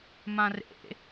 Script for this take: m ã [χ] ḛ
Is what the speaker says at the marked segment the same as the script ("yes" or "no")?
no